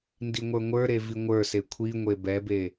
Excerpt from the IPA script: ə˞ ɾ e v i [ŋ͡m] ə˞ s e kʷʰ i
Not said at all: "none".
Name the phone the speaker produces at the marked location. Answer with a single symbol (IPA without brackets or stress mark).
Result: ŋʷ